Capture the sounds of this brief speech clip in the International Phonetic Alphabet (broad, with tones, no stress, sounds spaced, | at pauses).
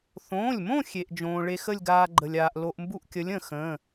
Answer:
θ õː˩˧˩ lʲ m õ˥˧ xʲ e˩ ʔ d͡ʒ õː˩ ɭ e˧ x ə˥˧ lʲ ɡ aː˧ ɡ͡ǃ ə˩ lʲ aː˩ ʔ l o˧ ʔ m b u˥˧ ʔ kʲ ə˨˥ lʲ ə̃˩ x ə̃ː˩˧˩